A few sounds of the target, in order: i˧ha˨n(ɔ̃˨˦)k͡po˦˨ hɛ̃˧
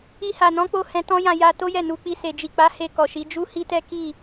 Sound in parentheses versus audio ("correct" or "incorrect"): correct